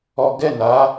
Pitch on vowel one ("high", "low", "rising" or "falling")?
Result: high